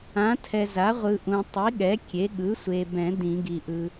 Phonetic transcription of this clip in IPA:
ã˩˥ tʰ ɛ˨ z a˩˥ ʁʷ ɯ˨ ʔ ũ˨ tˤ i˩˥ ɠ ɛ˩˥ kʲ e˩˥ ɠ ɯ˩˥ sʷ e˨ b ɛ̃˨˩˦ d ĩ˨˩˦ ɡ i˨ ʔ ɯ˨

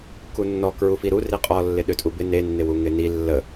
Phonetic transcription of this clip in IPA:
k u nː ɔ k ɹ u f i ɾ u r i qʼ ɔ lː ɪ ɗ ø tʼ u b ɪ n e nː ɪ w u ŋ ɪ n i lː ə

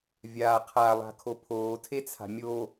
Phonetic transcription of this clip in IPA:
vʲ aː qʰ a lˠ a̤ kʰ o pʰ oː tʰ e t͡sʰ a̤ mʲ o

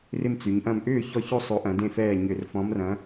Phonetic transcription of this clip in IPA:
r ɪ˥˨ m t͡s y˩˧ ɲ ʔ ɐ̃˥˨ m ʔ ʏː˥˨ ç ɔ˥˨ ç o˥˨ sˤ o˨˥ ʔ ɐ̃˩˧ d ẽ˥˨ f ɛː˥˨ ɲ ʏ˧˩˧ r f ɔ̃˨˥ m r ɐ̃˨˥

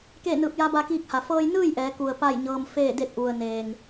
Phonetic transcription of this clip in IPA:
k eː˥˨ n ɯː˧˩ p̚ j a˧˥ b a˧ k iː˧ k̚ h a˩ f ɤː˧ j n ɯː˥˨ j ʔ ɛː˩˧ k u˩ ə̯ p a˥˨ j ɲ ɤː˧ m f eː˥˨ d e˥˨ t̚ ʔ u˩ ə̯ n eː˩ ŋ

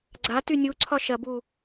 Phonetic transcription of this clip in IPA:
ɡ͡ǀ a t y nʲ u ǀʰ ɒ ʃ ɐ b u

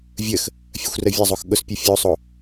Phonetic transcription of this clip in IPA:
vʲ ə x | fʲ ɐ xʷ r ə vʲ ɐ zˤ o x ɠ ʊ s pʲ o fʲ o sˤ o

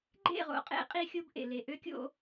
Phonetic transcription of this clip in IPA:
ɡ͡ǃ ḛ˦˨ ʁ o̰˨ qʼ ḛ˦ qʼ i˦ xʲ o˦ b ʔ ḛ˨ l e˨ ʔ ø˦ kʲ o̰˦

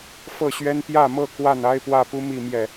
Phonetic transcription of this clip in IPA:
f ɤ˥˨ ɕ ɥ ɛ˦ n p j ä˥˨ m ɤ˥˨ k w a˥˨ n a˦ ɪ̯ p w ä˥˨ p u˦ m i˥˨ m j ɛ˨˩

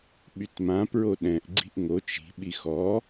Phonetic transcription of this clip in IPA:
ɓ y t m ã p ɹ o ɗ ɛ̃ ʔ ɡ͡ǀ i̤ ʔ ŋ o t͡ʃ i̤ ɓ i x ɔ

